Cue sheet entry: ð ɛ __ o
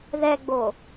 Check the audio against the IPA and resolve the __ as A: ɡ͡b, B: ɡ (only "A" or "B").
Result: A